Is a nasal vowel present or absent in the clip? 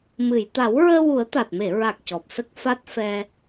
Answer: absent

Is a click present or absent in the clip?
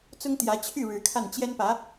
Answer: absent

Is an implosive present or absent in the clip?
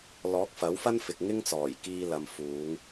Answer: absent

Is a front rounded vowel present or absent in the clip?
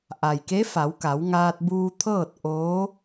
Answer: absent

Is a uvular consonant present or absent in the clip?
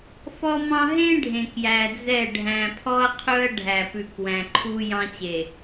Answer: present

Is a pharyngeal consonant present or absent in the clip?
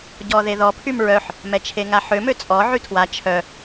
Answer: present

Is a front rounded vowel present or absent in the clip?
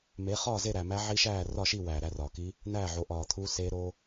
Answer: absent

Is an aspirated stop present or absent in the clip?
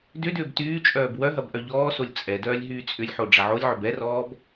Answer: absent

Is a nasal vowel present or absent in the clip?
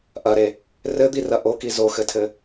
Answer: absent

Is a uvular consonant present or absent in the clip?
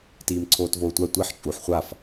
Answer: present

